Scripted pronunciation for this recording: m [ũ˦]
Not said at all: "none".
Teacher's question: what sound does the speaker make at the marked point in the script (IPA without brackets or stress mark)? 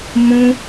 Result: ũ˦